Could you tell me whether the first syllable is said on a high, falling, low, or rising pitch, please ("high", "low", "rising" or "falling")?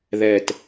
low